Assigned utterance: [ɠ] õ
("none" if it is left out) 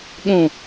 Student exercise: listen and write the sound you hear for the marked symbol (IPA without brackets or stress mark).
ɠ